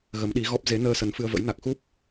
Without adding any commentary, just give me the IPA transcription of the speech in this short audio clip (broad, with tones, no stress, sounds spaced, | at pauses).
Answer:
ɣ ə˨˦ m ɗ i˨˦ ɣ ɔ˦˥ p̚ z e˨˦ n əː˧ s ə˨˦ n f ɨ˧ ə̯ v ə̰˧˥ j n a˨˩ k̚ x u˦˥ p̚